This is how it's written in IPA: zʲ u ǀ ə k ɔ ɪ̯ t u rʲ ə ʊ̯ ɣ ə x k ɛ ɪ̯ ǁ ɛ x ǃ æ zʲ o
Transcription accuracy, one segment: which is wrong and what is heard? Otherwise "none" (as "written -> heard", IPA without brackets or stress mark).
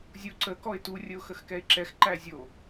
ɣ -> x